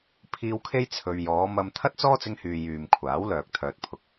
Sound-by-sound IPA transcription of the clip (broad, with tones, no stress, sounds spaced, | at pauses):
pʰ iː˧ w kʰ e˥ j t͡sʰ ɵ˧ ɥ j ɔː˨˧ m ɐ˧ m t̪ʰ ɐ˥ t̚ t͡s ɔː˥ t͡s ɪ˧ ŋ h yː˨ j yː˨ m kʷʰ aː˨˥ w l œː˨ k̚ t̪ʰ œː˨ t̚ pʰ ʊ˨˥ k̚